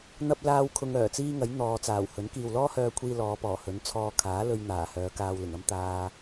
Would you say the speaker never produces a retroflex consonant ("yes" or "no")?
yes